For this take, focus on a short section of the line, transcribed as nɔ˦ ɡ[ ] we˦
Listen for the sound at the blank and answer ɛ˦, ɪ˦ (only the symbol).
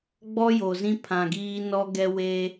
ɛ˦